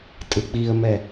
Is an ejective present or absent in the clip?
present